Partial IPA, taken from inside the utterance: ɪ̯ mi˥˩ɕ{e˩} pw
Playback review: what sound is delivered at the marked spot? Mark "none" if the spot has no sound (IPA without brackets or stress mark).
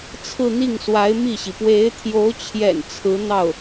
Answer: i˩